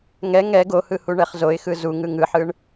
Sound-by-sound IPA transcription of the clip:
ŋɛ ŋɛ ɡohɯ huɳɛχzoɪ̯xɯ zu ŋɯŋɯħɯɳ

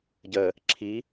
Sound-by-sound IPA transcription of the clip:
ɟə | ǁʰi

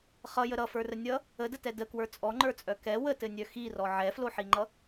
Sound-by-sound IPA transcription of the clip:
χʌjə ɾʌfə˞rə nʲʌ | ədətɛ dəkwə˞ t͡sʼɔŋ͡ǃə˞t͡sʼœ kɛ wətɘnʲœ xirɔ ʕɛfloħiŋ͡ǃʌ

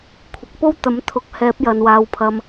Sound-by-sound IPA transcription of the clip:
kʷʰɪ˨k̚ po˥w t̪ɐ˨˥mt̪ʰʊ˨˥k̚hɛː˨˥p̚jɐ˨n waː˨wpʰɐ˨m

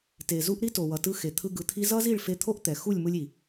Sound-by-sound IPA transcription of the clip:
te˨zu˧ʔ ɾi˦to˨wʌ˨tɯ˧ xe˨t̪ʰɯ˧ ɡɯ˨t̪ʰi˧zʌ˦zi˦˨ɭ fe˧t̪ʰo˦ʔt̪ɛ˨ xu˦˨lʲmɯ˧lʲi˨

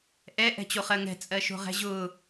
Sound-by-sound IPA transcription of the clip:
ʔɛ ʔɛ̤t͡ɕoχɜŋɛ̤ t͡sʼɜʃo̤ʁɛ̤ʑʊː

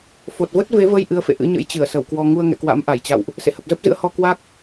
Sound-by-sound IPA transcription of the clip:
fo˨˩t̚və˦˥t̚ve˨˦və˧j ʔɨ˨˦ə̯fḛ˧˨ʔɨ̰˧˥ɲə̰˧˥j t͡ɕɨ˧˩ə̯sə˧˩wkwɔ˧ ŋu˧ə̯ŋɛ̰˧˨kwa̰˧˥m ʔa˧˩jt͡ɕa̰˧˨wʔ | sḛ˧˨hə˨˩p̚zə˦˥p̚zɨ̰˧˥ə̯ hɔ˧kwa˦˥k̚

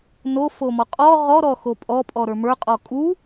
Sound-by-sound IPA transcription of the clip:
nofomɔ qʼɔ ʁɔɾɔxo pʼɔpʼɔɾə˞ mə˞qʼɔ kʼu

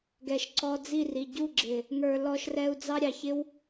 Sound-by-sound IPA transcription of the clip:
ɡɛ˨ʃǀɔ˧d͡zi˦˨ri˨ ɟu˦˨ɡ͡ǁɪ˨ | ŋə˞˨lɔ˧ʃrɛ˧u̯ d͡zɑ˦ɾʲɑ˨çɪ˦w

